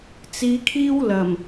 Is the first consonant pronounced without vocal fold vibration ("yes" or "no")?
yes